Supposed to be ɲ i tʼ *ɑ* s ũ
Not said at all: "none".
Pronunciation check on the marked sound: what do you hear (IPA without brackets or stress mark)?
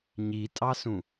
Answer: ɑ